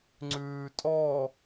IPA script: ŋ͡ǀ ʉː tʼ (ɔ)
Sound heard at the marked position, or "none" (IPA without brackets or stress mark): ɔ